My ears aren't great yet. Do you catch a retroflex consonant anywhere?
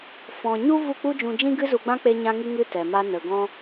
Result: no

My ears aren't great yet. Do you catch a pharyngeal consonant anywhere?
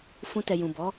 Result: no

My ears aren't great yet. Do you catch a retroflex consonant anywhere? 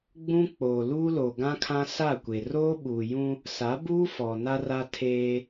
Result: no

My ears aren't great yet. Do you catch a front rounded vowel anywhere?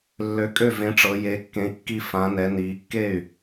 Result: yes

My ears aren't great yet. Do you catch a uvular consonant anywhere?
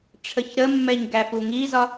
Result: no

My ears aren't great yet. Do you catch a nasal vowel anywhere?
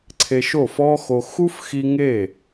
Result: no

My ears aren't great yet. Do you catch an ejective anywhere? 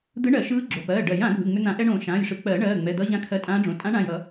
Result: yes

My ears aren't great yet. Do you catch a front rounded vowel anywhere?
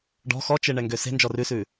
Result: yes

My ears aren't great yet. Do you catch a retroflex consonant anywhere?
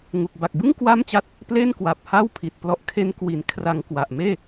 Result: no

